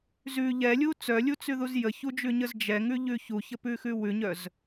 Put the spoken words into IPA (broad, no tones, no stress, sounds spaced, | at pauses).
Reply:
z ʉ ʎ ɛ lʲ u t͡s œ lʲ u t͡s ʉ ð u z j ə ç u d͡ʒ ʉ ɲ ə z d͡ʒ ɛ ŋ ʉ ʎ ʉ ç u ç ə p ʉ x ʉ w ʉ ɲ œ z